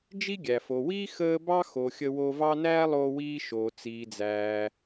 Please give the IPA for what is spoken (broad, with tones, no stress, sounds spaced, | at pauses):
d͡ʒ i˥ ɡʲ æ˩ f o˩ w iː˥ x əː˥ b ɑ˥ x o˩ xʲ ə˧ w o˧ v ɑ˥ n æː˥ lˠ oː˧ w iː˧ ʃ oː˩ t͡s iː˩ d͡z æː˩